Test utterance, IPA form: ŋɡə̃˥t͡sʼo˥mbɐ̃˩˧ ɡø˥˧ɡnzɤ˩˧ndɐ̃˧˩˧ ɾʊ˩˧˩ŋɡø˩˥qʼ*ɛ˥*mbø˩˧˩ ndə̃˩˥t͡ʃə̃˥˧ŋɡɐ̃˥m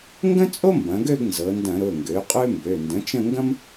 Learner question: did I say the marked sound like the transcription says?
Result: no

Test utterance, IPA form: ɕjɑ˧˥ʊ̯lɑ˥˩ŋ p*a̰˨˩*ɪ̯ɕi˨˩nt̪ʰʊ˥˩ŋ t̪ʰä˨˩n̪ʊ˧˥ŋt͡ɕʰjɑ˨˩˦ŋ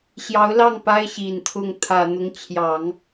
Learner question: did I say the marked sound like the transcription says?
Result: no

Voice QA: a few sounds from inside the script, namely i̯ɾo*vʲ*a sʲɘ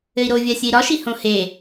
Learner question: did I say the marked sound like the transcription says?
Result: yes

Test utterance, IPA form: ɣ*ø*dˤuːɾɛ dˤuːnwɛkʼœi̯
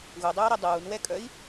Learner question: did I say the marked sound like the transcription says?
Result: no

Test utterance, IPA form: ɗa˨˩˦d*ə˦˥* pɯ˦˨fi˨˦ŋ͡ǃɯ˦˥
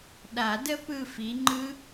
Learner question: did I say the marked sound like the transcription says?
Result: yes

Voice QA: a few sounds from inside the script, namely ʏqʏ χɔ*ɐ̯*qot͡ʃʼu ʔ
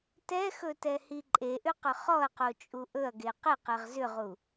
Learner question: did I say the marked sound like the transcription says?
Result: yes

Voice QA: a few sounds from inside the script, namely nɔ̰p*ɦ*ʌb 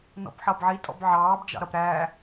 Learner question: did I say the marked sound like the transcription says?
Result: no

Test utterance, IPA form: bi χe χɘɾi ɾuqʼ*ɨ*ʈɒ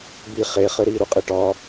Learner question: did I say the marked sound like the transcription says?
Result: no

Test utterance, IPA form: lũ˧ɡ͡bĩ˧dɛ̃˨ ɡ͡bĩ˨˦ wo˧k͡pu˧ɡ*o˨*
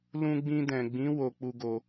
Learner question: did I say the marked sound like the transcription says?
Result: no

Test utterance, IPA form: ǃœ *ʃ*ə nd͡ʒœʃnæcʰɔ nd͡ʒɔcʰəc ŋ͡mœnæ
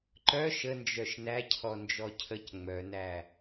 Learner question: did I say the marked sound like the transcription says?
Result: yes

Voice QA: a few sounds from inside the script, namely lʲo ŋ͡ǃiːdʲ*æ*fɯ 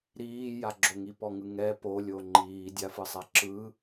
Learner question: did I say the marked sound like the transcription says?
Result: no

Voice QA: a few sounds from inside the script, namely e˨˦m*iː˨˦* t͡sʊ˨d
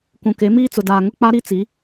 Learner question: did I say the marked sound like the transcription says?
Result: no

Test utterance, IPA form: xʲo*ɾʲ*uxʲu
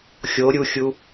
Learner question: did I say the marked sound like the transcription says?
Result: yes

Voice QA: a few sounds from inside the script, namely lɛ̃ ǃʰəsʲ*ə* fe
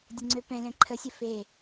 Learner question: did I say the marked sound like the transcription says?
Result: yes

